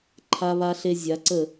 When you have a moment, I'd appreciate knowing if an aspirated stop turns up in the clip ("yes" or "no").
yes